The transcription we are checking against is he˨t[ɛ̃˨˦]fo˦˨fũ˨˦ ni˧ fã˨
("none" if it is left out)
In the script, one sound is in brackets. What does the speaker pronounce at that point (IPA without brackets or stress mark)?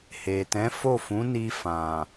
ɛ̃˨˦